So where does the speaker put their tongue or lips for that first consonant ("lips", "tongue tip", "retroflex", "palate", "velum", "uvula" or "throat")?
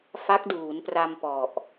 lips